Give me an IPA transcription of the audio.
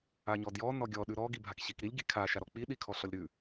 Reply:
a ɲ ɔ d j ɔ n ɔ ɡʲ ɔ ɗ ʉ ɾ ɔ ɡ i bʱ a k ɕ i k ɾ i lʲ ɡ i kʰ a ʃ a ɾ ɔ k͡p i ɗ i kʰ ɔ ɬ ɔ lʲ ɾ ʉ

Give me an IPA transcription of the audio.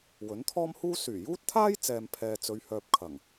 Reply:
w ɵ˨˥ n t̪ʰ ɔː˥ m h uː˥ s yː˨˩ j uː˥ t̚ t̪ʰ aː˥ j t͡s ɛː˨ m pʰ ɛː˨ t͡s ɵ˨˧ ɥ h œː˨ p̚ kʰ ɐ˨˩ ŋ

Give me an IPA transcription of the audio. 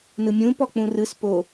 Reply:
n ɯ mʲ ũː p ɔ k͡p ũ r ɯ s p o

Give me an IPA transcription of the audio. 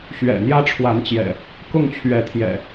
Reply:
ɕ ɥ ɛ̰˨˩ n̪ j ä˦ ʈ͡ʂʰ w a˨˦ n t͡ɕ j ɛ̰˨˩ | k ʊ˥˨ ŋ t͡ɕʰ ɥ ɛ˨˦ t̪ʰ j ɛ̰˨˩

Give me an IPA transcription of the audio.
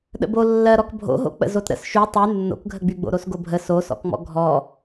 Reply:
ɗ ə̰ b o lː ɜ ɾ ɔ k bʱ o̰ ɦ o̰ k͡p ə̰ z o t ɾ ə̰ s ʃ y tˤ y nː o̰ k ɡʱ ə ɡ͡b y ɡ͡b o̰ ɾ o s ɡ o bʱ ə s o s ɔ̰ k ŋ͡m ɔ̰ ɡʱ ɔ

